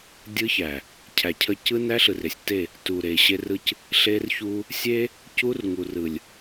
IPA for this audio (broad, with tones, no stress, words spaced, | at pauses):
dʲɯ˦çæ˨ | cʰæ˨cʰə˦ cɯ˦næ˦ɬɯ˨rɪ˨sʲ te˦˨ | tu˨ɾe˨ ɕe˦rɯ˦c | ɬe˦rçu˦ | sʲe˦ | cu˦rŋu˨rɯ˨lʲ